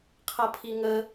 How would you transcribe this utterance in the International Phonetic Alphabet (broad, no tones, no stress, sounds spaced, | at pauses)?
qʰ ʌ pʰ i ŋ ə